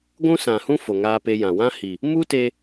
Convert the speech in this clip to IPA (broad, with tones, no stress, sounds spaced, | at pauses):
ɡʷ ũ˦ s ã˨ h ũ˦ f o˨ ŋ aː˧ p e˧ j ã˨ w ã˦ h i˨ | m u˦ t e˧